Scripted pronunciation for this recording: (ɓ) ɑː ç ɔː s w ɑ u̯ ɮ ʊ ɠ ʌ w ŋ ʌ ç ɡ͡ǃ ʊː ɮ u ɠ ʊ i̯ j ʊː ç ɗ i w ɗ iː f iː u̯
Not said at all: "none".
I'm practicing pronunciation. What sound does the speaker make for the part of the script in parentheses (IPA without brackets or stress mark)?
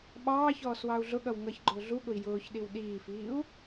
ɓ